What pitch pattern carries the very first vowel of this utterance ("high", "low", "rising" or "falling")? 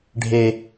high